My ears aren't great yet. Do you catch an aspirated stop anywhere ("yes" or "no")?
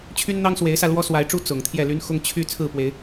yes